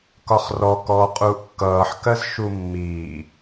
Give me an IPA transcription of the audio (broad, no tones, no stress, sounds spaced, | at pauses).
k ɒ χ r ɔ k ɔː qʼ uː ʔ kː ʌː ħ k ɜ z ʃ u mː iː